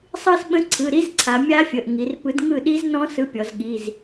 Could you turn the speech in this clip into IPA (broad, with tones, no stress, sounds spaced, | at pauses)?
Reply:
sˤ ɯ˥˧ s ɓ ə̃˦˥ ǀʰ ɯ˩˧˩ ɾ i˦˥ z ǀʰ a˩˧ mʲ a˦˥ fʲ ə˩˧˩ ʔ ŋ i˩˧ r p ɯ˨˥ d ŋ ɯ˥˩ ɗ i˦˥ z n ɔ̃˦˥ s ɯ˨˥ pʲ ɔ˩˧ z ɠ i˩˧˩ z